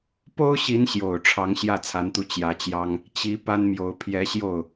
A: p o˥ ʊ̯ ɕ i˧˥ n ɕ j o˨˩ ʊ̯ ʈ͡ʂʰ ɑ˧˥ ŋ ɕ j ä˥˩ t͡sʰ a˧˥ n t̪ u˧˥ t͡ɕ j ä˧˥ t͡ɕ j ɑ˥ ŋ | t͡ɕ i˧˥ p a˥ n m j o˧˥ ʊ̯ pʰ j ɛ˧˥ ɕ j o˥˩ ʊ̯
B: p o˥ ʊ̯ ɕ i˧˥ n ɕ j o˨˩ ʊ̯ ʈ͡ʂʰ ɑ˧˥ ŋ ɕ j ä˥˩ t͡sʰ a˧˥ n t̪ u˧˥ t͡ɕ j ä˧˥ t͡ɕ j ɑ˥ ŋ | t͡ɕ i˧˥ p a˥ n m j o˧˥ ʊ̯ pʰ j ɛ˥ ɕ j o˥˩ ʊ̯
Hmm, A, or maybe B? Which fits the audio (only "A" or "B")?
A